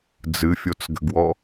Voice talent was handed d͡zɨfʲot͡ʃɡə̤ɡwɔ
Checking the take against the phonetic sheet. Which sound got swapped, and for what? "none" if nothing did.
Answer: t͡ʃ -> t͡s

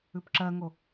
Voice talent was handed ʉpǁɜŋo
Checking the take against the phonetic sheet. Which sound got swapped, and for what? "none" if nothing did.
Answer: none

